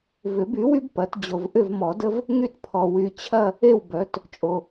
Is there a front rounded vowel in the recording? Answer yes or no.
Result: yes